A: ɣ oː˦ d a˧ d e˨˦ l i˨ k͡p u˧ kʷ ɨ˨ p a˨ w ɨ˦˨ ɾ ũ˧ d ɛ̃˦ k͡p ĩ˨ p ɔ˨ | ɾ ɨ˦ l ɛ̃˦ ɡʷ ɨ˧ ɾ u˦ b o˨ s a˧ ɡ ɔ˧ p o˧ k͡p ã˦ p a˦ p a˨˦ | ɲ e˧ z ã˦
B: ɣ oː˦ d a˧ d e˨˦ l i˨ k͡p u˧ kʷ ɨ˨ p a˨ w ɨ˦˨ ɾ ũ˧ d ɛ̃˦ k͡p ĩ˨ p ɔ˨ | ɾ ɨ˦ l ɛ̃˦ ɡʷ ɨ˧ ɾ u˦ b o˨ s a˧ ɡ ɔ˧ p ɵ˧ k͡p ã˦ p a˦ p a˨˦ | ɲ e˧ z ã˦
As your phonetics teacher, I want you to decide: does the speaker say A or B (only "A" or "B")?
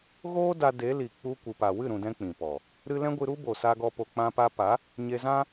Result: A